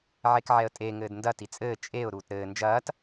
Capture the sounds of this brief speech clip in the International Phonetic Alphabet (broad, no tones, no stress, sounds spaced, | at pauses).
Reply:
ʕ e k ʕ ɛ ə̯ tʼ e ŋ ɘː d n d ɐ t i t͡sʼ ɘː t͡ʃʼ e ʊ̯ ɾ uː t ɾ ɘː n d͡ʒ ɐː t